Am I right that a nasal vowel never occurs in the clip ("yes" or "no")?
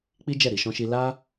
no